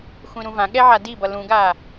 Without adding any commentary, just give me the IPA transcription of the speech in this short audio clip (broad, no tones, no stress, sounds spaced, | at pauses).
xʷ ĩ ɾ ũ v ã ɠ ɛ ʕ a d i b ʌ l ũ ɡ a